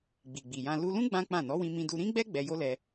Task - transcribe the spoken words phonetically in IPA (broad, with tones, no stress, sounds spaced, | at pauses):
ɡ͡b i˨ ɡ͡b i˨ j ã˧ l u˧ l ũ˦ ɡ͡b ã˦ k͡p ã˦˨ n ɔ˨˦ w ĩ˧ m ĩ˧ d u˧ ɾ ĩ˦ ɡ͡b ɛ˦ ɡ͡b ɛ˧ j o˦ l ɛ˧